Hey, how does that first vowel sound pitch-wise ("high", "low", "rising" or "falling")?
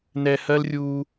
low